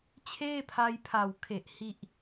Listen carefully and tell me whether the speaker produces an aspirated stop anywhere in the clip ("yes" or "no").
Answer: yes